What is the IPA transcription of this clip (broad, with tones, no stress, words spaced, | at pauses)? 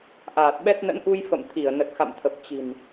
ʔaː˨˩t̚ɓɛ˦˥t̚ nə̰˧˥nʔu˧jfə̰˧˨m t̪ʰi˧˩ə̯nə˨˩t̚xa̰˧˨mt̪ʰə˨˩p̚ t͡ɕi̤˨˩n